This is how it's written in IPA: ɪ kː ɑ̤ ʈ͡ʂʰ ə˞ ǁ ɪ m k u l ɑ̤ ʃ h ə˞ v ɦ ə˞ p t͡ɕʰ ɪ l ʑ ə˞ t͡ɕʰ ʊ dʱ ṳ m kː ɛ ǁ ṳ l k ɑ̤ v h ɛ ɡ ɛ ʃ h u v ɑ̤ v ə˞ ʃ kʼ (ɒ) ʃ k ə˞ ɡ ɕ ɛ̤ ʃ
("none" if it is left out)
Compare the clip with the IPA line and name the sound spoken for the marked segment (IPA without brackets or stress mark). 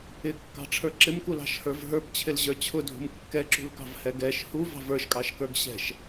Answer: ɑ